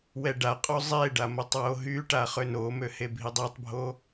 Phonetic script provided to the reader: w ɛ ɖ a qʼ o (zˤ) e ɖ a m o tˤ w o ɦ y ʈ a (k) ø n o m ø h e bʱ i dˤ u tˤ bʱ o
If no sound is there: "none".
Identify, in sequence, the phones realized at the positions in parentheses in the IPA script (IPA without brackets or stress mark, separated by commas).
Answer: zˤ, χ